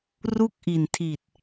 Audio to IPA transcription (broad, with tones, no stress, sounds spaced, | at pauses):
r u˥˩ k̚ ʔ i˨˩ n tʰ i˨˩ t̚